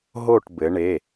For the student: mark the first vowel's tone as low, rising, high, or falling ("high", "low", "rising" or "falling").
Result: falling